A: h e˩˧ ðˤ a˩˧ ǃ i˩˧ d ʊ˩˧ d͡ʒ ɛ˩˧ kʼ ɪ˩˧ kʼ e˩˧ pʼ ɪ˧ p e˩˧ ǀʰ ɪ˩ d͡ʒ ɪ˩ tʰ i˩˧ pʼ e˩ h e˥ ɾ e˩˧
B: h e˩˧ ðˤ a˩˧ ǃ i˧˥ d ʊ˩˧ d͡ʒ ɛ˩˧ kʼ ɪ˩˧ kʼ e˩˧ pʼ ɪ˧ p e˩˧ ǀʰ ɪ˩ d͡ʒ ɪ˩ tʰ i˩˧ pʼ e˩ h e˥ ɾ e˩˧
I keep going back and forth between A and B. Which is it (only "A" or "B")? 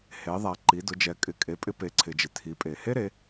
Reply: A